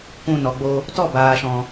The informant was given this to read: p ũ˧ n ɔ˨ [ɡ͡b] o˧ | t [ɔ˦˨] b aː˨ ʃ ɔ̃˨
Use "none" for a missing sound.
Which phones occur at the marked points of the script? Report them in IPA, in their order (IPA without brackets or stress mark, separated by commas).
ɡ͡b, ɔ˦˨